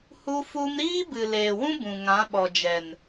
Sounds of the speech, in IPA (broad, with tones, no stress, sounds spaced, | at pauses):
h u˦ f u˦ m ɾ iː˦ b ɨ˨ l eː˨ w ũ˦ b ũ˨ ŋ ã˨˦ ɓ ɔ˨ d͡ʒ ɛ˨ n